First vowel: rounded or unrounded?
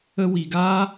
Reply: unrounded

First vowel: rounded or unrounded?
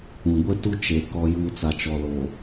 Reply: rounded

